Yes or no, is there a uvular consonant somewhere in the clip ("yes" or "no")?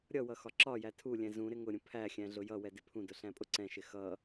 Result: no